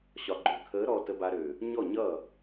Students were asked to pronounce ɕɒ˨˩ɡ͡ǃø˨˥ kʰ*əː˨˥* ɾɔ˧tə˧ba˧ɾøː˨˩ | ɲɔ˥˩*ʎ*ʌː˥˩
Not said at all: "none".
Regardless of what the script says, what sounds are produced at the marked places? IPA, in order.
əː˨˥, ɲ

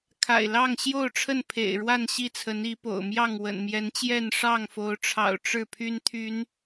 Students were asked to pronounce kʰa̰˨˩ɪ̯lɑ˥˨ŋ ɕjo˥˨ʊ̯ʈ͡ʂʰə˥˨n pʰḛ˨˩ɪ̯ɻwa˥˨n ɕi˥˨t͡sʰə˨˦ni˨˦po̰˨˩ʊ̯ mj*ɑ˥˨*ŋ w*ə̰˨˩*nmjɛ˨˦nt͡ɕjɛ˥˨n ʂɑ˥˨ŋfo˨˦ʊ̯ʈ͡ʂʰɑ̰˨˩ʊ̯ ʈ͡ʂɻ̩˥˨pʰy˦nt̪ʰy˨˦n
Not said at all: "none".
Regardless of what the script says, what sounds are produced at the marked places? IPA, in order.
ɑ˥˨, ə̰˨˩

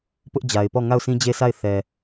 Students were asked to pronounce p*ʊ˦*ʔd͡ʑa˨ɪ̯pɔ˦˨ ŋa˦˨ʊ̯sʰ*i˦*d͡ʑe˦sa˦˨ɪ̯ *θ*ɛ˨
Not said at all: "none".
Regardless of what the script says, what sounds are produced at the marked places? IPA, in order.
ʊ˦, ĩ˦, θ

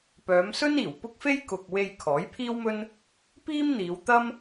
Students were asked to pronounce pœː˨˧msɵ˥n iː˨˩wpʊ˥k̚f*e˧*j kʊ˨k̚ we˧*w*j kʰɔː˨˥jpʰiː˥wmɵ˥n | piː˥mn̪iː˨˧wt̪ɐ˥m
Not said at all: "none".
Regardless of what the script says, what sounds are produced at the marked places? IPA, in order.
e˥, none

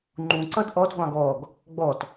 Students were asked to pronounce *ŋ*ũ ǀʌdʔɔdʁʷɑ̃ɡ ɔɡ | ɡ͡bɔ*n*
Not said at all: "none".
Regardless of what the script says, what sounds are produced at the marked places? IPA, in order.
ŋ͡ǃ, t

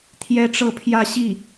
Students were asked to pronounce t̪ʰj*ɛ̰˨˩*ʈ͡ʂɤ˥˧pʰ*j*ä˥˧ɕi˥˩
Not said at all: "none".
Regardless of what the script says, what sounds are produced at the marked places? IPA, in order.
ɛ˥, j

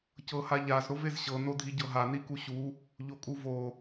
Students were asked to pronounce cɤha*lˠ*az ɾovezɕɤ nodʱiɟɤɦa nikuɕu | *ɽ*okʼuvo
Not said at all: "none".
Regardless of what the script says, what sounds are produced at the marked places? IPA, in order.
ʎ, ʎ

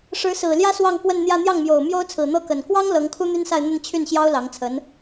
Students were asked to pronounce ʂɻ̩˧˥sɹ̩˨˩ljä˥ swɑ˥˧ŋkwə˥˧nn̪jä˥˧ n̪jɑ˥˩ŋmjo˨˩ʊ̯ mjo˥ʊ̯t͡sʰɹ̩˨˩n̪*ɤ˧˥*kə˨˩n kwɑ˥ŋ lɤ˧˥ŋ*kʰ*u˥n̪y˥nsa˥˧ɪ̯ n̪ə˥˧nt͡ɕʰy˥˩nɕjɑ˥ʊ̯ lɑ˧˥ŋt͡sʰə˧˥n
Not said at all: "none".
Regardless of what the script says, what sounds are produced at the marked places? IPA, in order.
ɤ˥, kʰ

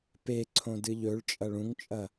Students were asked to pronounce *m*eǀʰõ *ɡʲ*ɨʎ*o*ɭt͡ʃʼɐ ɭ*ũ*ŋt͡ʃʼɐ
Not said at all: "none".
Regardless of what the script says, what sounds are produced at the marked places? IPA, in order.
p, d, ɵ, ũ

